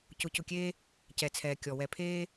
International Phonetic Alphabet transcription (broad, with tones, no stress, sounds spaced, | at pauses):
c ʊ˨˦ c ʊ˨ kʲ eː˦ | c ɛ˨ t͡sʰ ɛː˨ kʲ ɔ˨ w ɛ˨ pʰ eː˦